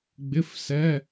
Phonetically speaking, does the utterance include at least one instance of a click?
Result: no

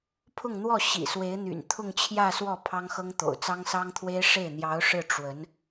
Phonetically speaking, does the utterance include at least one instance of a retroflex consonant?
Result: yes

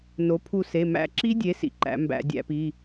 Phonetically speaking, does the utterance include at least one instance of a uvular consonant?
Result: no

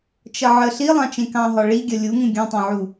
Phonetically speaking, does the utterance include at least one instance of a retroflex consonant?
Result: yes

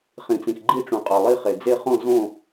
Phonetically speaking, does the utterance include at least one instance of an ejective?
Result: yes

